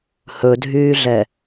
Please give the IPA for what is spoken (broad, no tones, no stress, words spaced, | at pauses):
hɵdʱyːɮɛ